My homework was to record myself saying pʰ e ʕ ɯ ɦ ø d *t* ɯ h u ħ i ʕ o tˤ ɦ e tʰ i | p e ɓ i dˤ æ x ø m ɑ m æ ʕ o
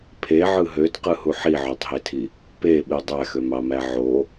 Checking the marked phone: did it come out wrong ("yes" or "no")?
yes